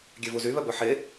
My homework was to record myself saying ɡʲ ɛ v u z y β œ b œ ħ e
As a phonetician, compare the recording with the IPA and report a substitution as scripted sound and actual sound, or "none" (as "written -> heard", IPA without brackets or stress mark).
none